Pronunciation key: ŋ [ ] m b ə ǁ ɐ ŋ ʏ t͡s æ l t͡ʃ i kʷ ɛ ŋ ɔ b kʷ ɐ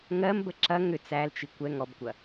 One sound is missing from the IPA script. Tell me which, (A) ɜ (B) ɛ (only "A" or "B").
A